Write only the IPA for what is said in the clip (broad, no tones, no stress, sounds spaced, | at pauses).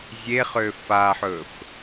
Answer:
zʲ e χ ø f a ħ ɵ f